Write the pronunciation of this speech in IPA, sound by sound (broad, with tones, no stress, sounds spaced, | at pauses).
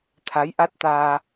t̪ʰ a˨˦ j ʔ a˦˥ t̚ t̪ aː˧